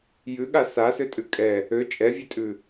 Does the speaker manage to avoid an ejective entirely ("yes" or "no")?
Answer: no